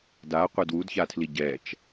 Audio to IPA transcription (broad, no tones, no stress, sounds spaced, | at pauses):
d a qʷ ɛ d w u d ç a tʰ l i ɟ ɛ t͡ʃ